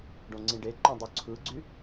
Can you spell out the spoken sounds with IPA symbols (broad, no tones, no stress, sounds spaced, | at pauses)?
ɖ õ ŋ͡ǀ ĩ ɖ e ǃ õ dˤ u ǀʰ ɯ ɡ͡ǀ y